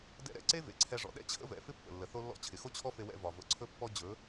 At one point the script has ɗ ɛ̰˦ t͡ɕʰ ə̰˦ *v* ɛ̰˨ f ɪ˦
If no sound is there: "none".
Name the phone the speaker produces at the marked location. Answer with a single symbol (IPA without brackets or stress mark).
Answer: v